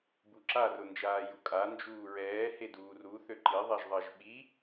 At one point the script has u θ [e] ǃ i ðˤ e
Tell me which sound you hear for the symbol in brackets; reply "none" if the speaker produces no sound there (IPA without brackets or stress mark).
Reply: ø